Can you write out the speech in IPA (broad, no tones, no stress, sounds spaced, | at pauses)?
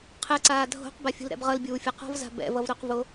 qʰ ɛ ǀ aː dʱ o̤ q b a fʲ ṳ l ɾ ɛ̰ b ʁ ʌ l bʲ uː fʲ ʌ q ɔ̤ v z a̤ b ɛ̰ v ʌ v ɾ o q v o